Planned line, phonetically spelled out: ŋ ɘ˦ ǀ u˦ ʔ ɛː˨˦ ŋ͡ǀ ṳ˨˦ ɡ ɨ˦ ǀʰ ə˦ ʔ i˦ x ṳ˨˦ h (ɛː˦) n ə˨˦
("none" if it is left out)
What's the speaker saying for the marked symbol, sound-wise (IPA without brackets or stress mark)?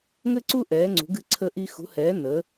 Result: ɛː˨˦